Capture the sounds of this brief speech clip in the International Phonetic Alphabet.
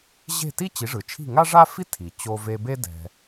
ʑ e̤˥˩ t i˥ t͡ɕ i˩˥ ʐ ɯ˩ t͡ʃʰ i̤˥˩ ŋ a˥ ʐ a˥ f i˥ tʰ i˩ t͡ɕ o˧ v e˧ b e˥ d ɛ̤˧

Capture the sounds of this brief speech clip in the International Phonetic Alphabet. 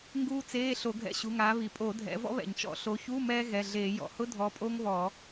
ŋ ɡ uː˥ t͡s eː˧˥˧ ɬ o˧˩˧ ɡʱ ɛ̰˧˥˧ ɕ u˩˧˩ ŋ aː˨˦ β i˩ pʼ o˧˩˧ dʱ ɛ̰˨˦ v ɔ̰˥ β ɛ̰˩ ɲ t͡ʃ ɔ̰˧˩˧ ɬ o˨˦ ç u˧˥˧ m ɛː˥ ɣ ɛ˩˧˩ ɮ eː˧˩˧ j ɔ̰˩ h ʊ˥ dʱ ɔ˨˦ pʼ o˥ ŋ β ɔ˧˩˧

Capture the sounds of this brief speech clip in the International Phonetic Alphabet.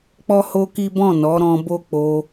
k͡p ɔ˦ h o˦ k i˦ b ɔ̃˦˨ n ɔ˨˦ ɾ ɔ̃˧ b o˦ k͡p o˧

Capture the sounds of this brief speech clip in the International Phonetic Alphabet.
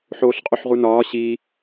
ħ oː ɬ qʼ u ħ ʁ u n ɒː ɕ i

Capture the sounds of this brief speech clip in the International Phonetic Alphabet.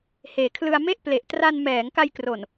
h eː˨˩ kʰ l ɯ˧ a̯ m e˥˩ ʔ p l e˨˩ ʔ t r a˧ n m ɛː˩˦ ŋ k a˧ j k r o˨˩ n

